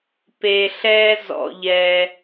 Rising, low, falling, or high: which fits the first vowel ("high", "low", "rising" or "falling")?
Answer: low